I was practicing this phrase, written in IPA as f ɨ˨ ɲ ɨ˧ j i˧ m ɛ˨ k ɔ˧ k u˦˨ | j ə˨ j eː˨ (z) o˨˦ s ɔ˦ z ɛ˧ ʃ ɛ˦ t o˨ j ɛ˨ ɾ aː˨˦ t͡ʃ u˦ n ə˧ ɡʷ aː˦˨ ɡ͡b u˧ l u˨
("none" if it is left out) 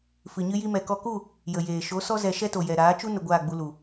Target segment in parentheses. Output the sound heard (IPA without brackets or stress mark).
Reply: ʃ